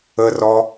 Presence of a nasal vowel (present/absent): absent